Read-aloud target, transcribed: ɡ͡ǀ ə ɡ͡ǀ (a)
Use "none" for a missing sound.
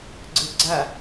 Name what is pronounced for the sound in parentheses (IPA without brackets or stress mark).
a